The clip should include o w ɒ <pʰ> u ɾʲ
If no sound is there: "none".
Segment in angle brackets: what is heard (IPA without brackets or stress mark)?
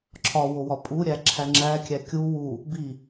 pʼ